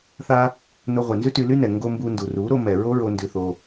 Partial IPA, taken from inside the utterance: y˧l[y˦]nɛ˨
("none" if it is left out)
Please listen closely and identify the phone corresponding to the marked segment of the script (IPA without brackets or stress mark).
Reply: y˦